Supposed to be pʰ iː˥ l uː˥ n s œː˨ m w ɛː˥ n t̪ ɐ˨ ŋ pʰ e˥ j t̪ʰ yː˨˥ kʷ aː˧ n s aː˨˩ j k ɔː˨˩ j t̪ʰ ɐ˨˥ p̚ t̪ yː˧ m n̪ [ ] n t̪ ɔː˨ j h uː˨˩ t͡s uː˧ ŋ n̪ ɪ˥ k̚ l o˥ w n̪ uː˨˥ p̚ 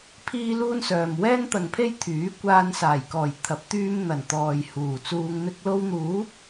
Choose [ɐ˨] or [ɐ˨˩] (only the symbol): ɐ˨˩